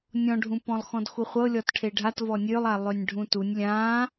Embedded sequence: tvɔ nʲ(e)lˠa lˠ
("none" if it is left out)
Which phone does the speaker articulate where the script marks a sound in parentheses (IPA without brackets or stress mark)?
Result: ø